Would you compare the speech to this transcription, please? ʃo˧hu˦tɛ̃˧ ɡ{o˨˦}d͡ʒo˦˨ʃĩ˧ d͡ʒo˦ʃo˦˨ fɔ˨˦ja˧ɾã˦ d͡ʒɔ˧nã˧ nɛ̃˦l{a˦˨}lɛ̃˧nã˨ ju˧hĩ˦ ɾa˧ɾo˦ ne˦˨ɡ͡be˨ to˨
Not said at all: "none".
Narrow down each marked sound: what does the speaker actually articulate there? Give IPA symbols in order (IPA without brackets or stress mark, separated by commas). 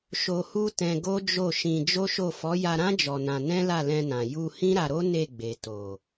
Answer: o˦, a˦˨